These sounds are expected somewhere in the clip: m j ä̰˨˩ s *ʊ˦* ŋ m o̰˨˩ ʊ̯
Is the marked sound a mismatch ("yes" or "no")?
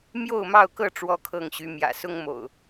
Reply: no